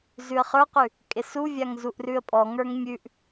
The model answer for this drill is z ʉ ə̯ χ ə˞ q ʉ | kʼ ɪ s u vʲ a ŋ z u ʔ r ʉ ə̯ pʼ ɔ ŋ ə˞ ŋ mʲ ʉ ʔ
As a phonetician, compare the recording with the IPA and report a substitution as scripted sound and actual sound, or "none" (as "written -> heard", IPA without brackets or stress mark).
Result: none